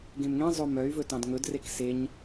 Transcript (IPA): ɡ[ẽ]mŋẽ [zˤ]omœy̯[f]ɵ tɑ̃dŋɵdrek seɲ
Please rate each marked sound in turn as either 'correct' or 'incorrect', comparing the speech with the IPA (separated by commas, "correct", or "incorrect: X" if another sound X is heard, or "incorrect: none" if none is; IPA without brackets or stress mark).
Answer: correct, correct, incorrect: v